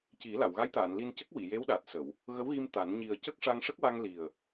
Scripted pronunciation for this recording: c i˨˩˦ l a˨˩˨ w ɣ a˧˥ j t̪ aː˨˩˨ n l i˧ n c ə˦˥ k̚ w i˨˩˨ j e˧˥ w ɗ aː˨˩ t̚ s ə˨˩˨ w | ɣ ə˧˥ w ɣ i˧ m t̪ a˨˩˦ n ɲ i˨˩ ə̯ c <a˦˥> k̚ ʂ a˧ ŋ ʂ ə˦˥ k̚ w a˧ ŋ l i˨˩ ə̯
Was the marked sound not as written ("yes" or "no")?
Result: yes